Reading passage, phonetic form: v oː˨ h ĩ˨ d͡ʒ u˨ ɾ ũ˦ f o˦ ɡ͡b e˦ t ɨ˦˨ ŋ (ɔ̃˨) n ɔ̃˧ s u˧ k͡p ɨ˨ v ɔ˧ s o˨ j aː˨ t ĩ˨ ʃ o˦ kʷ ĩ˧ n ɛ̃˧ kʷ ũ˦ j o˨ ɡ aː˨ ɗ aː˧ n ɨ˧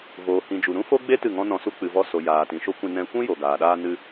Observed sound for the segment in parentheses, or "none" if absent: ɔ̃˦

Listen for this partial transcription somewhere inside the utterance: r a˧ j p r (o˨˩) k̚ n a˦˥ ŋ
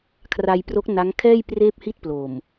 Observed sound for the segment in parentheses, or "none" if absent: o˦˥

